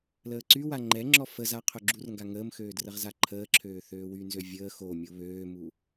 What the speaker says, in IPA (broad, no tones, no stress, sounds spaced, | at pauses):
l əː ǀ y w a ŋ͡ǃ ɛ ŋ͡ǁ ɔ f ə z a qʰ œ ɡ͡ǁ u r ŋ ɡ a ŋ əː m x øː d r ə ʁ z a ǃʰ əː ǁʰ øː θ øː w y n z ø vʲ əː x o mʲ o β øː m u